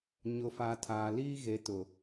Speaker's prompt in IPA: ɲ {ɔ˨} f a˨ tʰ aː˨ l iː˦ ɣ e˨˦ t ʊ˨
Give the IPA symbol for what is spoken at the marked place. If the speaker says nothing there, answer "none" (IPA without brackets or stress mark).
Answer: ʊ˨